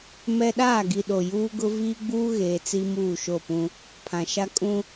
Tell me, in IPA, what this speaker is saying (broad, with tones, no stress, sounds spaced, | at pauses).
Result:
m ɛ˦ ɗ aː˦˨ ɡ i˨ ɗ o˨ j uː˦ ɡ ʊ˦ v iː˦ ɡ͡b uː˦ ɣ eː˨ t͡s i˦ m uː˦˨ ʃ o˦˨ p ũ˦ | pʰ ã˨ ʃ a˦ kʼ ũ˦